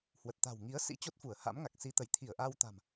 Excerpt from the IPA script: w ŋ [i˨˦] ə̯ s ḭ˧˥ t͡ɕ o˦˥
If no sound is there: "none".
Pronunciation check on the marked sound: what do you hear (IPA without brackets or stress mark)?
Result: i˨˦